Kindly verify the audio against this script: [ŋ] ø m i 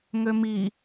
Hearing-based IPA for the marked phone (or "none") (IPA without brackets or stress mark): ŋ